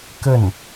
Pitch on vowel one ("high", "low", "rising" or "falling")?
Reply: falling